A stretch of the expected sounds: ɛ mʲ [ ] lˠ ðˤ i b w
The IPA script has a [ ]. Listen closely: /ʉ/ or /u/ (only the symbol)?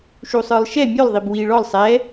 ʉ